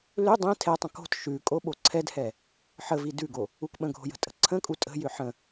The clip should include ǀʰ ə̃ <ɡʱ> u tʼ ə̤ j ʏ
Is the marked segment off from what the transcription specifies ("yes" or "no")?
yes